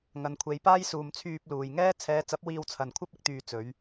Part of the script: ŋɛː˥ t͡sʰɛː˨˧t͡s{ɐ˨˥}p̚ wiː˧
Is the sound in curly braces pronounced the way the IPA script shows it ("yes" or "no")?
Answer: yes